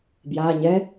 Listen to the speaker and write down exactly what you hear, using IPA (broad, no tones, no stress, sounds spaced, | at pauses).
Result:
b j a ɲ ɛ